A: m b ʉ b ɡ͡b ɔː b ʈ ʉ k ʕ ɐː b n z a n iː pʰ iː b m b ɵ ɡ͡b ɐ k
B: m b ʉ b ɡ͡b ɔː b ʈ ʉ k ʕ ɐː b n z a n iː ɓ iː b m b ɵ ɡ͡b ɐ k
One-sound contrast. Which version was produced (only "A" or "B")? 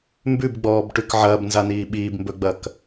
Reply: B